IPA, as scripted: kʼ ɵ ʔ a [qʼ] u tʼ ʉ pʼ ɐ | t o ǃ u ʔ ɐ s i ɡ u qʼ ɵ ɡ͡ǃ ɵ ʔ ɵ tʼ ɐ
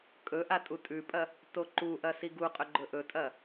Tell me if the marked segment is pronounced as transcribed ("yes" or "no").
no